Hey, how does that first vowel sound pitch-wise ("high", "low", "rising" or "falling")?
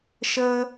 high